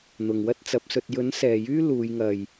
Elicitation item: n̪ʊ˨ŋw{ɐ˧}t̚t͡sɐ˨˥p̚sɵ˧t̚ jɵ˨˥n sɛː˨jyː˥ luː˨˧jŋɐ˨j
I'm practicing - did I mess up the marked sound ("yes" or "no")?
yes